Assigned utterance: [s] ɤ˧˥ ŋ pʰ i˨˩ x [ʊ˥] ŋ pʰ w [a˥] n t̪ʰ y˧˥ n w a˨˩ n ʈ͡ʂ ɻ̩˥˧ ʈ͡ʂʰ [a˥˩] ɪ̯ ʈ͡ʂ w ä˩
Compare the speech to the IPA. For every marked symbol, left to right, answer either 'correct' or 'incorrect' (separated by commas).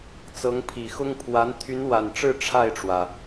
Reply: incorrect, correct, incorrect, correct